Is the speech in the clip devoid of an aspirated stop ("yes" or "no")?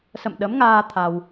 no